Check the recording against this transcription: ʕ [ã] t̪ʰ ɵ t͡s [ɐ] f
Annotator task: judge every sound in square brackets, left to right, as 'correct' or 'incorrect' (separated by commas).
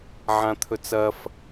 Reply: correct, correct